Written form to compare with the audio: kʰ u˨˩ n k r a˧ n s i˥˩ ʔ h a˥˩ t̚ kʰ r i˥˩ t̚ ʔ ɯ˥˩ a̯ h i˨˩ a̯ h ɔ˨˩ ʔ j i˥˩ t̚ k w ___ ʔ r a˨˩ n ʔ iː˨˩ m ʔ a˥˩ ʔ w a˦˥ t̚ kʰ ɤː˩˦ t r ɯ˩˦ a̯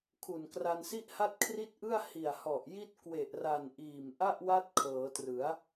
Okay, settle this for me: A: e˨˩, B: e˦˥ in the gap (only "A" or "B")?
A